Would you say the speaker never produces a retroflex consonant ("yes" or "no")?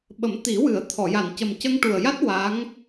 no